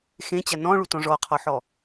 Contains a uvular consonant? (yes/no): yes